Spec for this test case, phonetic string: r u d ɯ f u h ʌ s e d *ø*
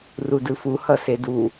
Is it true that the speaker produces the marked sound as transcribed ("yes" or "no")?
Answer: no